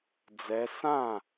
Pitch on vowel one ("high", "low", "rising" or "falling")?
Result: rising